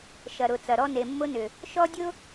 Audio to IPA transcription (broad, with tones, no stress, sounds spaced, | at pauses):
ʃ ɐ˨ ɾ ʊ˨ t͡s ɐ˨ ɾ ɔ˦ n e˨ mː ʊ˦ n ʏ˨ | ʃ ɔ˦ dʲ ʊ˦